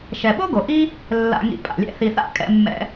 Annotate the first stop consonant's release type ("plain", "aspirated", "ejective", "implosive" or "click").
implosive